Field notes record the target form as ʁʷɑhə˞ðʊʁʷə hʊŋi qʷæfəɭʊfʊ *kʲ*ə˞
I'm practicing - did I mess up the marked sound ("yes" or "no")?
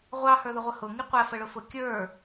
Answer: no